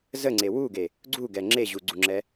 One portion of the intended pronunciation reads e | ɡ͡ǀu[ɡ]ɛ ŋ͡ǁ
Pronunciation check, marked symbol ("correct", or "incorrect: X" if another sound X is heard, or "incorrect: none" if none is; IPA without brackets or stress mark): correct